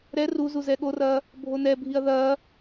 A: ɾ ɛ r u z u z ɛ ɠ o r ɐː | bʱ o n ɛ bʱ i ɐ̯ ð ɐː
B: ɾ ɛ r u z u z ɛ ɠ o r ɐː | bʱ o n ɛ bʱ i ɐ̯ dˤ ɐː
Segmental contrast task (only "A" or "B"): A